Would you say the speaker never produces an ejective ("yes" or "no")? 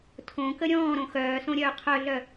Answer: yes